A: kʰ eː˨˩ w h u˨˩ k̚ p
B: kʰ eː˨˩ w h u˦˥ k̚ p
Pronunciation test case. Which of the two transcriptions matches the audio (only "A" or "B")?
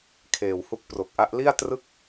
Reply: B